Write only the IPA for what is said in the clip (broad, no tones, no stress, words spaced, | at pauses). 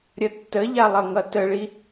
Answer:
ɾʲʌtːəʎa lˠʌŋʌtəɭi